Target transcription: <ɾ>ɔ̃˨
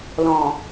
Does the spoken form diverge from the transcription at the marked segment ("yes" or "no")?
yes